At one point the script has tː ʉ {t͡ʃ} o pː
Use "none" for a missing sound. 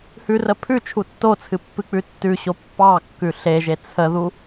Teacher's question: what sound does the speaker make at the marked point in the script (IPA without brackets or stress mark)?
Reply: ɕ